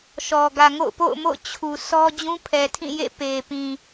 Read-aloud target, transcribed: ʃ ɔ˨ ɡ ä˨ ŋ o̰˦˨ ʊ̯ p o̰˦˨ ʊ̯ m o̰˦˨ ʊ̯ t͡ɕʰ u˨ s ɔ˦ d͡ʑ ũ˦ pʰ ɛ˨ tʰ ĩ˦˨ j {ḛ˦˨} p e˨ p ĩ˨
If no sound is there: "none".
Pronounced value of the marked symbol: ḛ˦˨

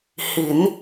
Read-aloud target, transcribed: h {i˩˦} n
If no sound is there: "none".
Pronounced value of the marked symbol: i˩˦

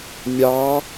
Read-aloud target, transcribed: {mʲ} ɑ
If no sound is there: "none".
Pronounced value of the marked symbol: mʲ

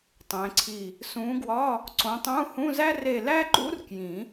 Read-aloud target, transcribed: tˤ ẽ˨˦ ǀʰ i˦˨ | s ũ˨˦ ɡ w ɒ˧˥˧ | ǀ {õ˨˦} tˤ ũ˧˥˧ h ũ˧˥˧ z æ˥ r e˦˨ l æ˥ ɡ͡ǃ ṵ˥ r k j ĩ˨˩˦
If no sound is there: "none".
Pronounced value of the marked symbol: õ˨˦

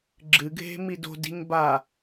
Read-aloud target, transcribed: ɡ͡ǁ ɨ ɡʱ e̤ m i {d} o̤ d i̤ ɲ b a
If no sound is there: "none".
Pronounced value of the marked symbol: d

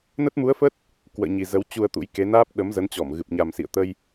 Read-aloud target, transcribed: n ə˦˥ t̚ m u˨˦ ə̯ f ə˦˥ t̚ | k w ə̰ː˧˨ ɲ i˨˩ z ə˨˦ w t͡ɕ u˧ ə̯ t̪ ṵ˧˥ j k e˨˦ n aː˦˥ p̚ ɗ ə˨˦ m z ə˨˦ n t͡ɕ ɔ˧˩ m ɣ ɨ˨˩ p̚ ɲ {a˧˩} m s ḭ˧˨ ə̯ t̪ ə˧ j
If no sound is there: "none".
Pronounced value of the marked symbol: a˨˩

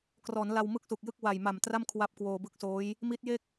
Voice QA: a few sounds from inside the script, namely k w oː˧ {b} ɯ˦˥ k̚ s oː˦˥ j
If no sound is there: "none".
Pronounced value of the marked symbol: b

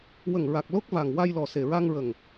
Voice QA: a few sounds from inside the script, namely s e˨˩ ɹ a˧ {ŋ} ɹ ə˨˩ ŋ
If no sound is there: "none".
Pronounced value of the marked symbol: ŋ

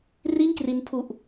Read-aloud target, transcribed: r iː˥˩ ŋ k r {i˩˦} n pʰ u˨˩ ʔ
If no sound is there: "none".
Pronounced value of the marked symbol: i˦˥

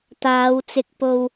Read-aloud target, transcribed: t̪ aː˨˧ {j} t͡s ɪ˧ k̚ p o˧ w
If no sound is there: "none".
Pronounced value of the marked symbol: w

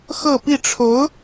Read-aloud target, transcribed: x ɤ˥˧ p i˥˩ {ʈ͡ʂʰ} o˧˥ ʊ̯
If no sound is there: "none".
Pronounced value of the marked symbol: ʈ͡ʂʰ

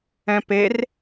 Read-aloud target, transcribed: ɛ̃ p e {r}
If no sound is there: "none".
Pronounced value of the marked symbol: r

